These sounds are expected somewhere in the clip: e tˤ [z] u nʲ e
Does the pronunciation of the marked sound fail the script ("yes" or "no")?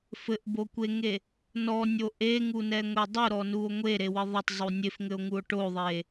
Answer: yes